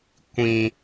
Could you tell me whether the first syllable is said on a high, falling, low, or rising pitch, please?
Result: high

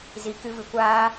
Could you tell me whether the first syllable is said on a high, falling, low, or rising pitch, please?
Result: low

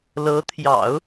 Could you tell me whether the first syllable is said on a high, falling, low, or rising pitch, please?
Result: rising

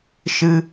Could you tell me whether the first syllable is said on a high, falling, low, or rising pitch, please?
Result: high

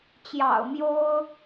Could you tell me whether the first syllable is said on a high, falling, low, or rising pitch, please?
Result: low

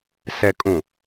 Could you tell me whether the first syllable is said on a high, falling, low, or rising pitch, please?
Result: low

